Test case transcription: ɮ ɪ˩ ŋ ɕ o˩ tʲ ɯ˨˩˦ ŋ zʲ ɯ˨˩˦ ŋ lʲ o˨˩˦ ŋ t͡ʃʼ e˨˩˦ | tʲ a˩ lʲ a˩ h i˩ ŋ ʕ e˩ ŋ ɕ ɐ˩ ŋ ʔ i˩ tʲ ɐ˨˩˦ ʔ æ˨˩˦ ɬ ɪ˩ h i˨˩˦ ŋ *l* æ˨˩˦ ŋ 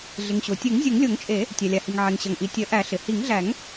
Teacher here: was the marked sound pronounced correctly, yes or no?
no